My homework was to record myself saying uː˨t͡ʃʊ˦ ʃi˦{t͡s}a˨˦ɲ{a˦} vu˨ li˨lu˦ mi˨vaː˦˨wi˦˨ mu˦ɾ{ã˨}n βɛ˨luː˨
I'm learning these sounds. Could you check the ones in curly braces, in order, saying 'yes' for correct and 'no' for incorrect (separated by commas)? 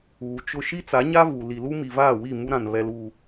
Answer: yes, yes, yes